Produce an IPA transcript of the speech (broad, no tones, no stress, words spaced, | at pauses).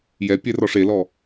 jɛ pʲɛrɔʂelɔ